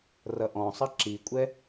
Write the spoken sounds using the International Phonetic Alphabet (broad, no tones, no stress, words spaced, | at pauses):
rʌʔɔ̃sˤʌ ǁikʷʼɛ